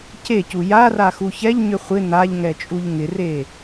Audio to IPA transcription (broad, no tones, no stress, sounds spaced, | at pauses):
c e c u j a r a x u ç ɛ ʎ ɲ ʏ χʷ ɪ n̪ a ʎ ŋ ɛ t͡ʃʼ u ʎ ŋ ɪ r e